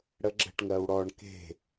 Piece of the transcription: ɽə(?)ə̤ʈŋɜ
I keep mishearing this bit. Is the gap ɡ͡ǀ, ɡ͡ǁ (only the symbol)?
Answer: ɡ͡ǁ